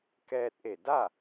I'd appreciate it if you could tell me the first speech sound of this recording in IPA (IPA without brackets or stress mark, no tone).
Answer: k